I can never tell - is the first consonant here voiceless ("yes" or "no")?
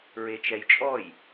no